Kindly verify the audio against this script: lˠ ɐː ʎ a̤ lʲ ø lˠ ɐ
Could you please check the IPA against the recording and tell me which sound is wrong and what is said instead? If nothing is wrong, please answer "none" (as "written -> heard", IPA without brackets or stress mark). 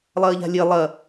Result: ø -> e